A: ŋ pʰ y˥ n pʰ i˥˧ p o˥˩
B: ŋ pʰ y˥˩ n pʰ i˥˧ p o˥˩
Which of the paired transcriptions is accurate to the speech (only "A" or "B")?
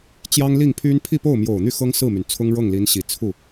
A